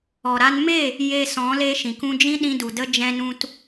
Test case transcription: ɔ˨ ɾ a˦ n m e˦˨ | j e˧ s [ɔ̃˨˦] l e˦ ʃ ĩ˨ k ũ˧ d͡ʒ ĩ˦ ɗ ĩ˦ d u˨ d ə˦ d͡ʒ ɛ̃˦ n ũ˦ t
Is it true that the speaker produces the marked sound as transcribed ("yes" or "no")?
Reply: yes